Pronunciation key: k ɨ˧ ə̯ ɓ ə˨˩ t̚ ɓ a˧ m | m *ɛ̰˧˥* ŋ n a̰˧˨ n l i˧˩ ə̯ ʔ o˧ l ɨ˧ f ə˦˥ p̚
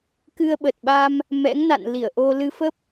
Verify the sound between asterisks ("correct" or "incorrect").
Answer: correct